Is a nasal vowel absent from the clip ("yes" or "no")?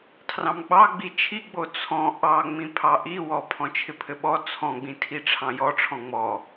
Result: no